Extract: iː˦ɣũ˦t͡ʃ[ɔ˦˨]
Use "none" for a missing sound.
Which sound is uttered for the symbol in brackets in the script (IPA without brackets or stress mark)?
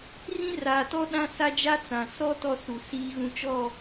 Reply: ɔ˦˨